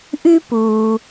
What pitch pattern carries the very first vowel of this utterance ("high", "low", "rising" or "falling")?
high